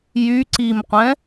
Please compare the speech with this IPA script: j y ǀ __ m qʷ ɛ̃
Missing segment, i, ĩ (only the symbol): i